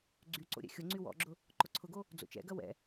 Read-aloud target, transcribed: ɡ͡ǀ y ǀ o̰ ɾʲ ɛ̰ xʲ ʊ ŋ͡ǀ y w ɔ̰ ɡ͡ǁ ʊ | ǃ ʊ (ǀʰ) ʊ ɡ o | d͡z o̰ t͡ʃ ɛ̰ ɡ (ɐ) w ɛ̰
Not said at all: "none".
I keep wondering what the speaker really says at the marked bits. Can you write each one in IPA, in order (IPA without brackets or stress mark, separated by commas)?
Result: ǀʰ, ɐ